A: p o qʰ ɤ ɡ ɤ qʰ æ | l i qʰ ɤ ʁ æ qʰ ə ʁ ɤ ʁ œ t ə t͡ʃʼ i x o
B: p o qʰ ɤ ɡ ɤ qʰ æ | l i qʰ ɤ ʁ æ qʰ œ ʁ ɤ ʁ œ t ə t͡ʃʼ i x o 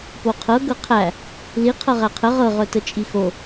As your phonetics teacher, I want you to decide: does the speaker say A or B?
A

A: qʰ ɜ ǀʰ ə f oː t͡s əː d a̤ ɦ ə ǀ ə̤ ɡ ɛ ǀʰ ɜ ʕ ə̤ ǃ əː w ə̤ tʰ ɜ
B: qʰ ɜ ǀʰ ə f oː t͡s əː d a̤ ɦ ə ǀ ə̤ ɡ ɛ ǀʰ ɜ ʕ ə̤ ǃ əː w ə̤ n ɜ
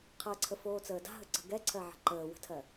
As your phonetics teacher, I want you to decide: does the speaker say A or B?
A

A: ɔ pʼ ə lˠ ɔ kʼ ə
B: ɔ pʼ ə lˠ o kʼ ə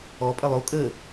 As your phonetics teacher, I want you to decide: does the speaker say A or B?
B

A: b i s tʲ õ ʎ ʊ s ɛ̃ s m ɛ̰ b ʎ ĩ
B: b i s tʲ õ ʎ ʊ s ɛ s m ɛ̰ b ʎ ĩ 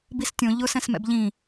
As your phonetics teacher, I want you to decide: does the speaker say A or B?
A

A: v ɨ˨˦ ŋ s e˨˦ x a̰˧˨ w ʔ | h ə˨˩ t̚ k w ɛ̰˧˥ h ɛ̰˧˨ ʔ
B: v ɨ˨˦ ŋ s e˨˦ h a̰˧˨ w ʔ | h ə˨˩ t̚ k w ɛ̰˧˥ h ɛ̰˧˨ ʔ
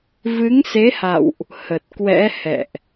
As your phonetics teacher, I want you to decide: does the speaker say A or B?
B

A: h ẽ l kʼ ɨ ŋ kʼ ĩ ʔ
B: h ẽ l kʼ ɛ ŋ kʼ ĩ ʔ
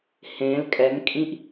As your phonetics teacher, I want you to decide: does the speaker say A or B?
B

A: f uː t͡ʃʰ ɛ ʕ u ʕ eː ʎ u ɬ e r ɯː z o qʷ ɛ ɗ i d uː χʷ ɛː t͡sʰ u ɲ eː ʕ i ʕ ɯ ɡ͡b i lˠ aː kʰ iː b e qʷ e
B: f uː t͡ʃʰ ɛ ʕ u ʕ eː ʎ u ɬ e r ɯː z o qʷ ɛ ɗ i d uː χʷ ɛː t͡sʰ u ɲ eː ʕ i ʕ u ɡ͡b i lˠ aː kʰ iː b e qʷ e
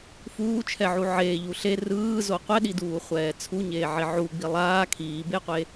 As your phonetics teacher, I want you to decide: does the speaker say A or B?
B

